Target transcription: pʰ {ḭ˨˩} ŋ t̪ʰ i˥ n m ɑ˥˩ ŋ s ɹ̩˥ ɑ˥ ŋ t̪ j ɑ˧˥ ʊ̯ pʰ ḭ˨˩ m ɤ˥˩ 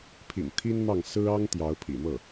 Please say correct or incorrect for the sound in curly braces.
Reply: correct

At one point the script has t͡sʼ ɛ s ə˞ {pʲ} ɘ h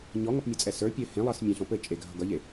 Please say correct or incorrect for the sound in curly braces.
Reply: correct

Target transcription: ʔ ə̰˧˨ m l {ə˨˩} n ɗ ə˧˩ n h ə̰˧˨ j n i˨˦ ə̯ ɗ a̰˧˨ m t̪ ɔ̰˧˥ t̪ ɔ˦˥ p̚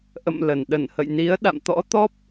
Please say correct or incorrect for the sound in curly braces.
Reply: correct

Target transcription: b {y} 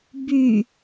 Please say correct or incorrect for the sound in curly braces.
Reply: correct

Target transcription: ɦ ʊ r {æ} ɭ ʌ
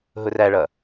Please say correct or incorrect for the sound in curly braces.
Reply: correct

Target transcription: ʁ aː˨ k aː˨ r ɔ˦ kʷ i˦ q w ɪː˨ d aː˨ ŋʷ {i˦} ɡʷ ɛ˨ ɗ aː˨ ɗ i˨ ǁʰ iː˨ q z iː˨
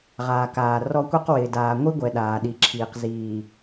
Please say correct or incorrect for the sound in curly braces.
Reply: correct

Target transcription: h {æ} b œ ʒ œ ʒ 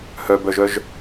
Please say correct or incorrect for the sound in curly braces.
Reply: incorrect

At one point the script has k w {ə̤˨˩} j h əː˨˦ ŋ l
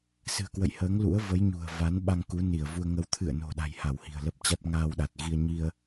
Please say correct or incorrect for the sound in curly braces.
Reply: incorrect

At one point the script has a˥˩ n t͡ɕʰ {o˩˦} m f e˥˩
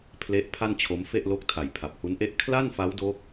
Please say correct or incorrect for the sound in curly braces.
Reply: incorrect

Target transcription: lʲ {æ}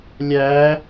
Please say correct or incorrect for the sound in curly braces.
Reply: correct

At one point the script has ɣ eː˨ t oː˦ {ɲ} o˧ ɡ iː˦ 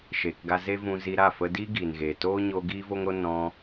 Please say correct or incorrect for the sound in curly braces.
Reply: correct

